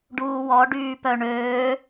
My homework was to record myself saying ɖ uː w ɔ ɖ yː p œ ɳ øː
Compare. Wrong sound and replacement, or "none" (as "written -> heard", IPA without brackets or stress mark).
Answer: none